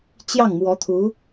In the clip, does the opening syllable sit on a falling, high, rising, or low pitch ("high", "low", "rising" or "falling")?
falling